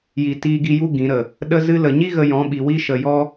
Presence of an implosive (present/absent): present